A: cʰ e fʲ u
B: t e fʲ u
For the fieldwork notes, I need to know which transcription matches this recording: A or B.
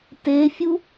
B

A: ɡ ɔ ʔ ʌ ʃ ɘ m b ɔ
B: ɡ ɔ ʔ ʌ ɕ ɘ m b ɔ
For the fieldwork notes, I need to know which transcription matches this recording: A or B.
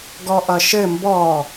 A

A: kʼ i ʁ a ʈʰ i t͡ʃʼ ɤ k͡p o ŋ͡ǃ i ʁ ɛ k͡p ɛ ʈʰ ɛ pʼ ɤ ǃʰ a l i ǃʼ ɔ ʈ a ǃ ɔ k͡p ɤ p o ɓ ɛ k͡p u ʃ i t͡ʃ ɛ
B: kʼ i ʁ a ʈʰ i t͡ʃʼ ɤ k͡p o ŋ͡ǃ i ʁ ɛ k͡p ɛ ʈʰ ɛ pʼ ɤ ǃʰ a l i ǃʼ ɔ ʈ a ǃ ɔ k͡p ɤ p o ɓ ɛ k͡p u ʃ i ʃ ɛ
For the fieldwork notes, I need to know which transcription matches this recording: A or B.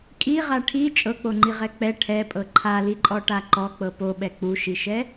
B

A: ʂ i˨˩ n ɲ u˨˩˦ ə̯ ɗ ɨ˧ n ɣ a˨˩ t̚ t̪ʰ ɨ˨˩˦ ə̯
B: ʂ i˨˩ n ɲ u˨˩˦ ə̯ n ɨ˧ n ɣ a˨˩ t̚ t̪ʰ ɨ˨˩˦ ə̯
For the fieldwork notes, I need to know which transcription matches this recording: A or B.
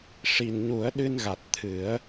A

